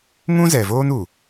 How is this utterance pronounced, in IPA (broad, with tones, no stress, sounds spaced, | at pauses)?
ŋ ũ˦ z ɛ˨ v oː˦ n u˨